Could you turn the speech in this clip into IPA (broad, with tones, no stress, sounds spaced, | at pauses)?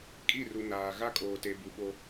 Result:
kʼ i˦˨ r u˨ n aː˨ ɣ a˦ kʼ oː˨ t e˨ b u˨ ɓ o˦